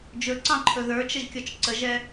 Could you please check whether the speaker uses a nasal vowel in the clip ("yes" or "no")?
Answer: yes